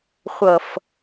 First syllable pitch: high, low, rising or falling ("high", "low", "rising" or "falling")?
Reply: low